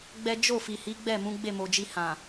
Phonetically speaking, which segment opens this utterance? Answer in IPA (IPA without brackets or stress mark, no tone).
ɡ͡b